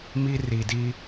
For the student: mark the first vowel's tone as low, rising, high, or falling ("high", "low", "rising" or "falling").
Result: high